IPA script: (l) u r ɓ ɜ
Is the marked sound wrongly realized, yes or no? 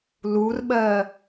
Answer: no